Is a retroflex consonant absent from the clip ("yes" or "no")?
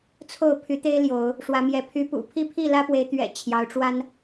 no